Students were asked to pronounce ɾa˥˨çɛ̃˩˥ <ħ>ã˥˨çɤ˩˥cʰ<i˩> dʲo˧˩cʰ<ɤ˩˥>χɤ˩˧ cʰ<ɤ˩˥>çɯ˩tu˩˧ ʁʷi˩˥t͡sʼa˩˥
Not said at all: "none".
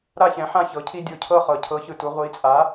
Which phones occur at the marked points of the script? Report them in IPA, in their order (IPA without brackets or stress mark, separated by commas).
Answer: ħ, i˦, ɤ˥˨, ɤ˩˥